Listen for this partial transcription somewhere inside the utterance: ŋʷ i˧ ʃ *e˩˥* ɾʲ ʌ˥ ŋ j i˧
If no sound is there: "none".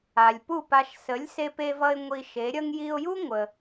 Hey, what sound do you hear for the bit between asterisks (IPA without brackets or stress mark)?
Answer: e˩˥